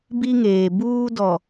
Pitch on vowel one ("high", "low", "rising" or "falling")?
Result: high